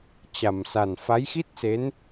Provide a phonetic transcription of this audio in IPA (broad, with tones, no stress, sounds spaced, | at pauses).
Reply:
t͡ɕ a˨˩ m s a˨˩ n f a˨˦ j x i˦˥ t̚ s e˨˦ n